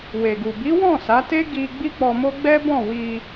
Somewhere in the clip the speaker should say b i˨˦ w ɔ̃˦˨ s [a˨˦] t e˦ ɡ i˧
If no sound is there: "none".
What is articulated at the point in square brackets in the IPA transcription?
a˨˦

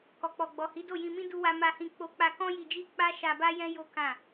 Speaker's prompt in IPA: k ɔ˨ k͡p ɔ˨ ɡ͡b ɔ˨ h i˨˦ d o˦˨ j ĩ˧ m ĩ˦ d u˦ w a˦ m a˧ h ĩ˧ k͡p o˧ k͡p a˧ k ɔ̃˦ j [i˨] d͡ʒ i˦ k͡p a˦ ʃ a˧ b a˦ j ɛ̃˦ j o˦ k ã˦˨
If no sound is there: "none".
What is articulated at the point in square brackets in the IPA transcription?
i˧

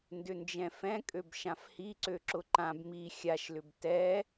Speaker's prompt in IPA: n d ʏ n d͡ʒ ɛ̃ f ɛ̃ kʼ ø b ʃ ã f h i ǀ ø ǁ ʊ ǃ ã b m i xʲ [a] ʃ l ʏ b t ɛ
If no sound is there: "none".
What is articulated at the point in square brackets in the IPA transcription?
a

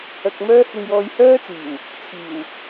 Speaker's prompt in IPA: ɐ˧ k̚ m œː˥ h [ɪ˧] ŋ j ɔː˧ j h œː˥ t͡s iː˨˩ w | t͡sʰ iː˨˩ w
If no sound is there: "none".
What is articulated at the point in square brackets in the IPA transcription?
ɪ˧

